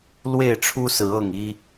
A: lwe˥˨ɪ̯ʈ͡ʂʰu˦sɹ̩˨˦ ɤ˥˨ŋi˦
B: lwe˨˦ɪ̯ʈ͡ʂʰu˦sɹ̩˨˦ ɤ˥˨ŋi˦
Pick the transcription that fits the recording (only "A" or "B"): A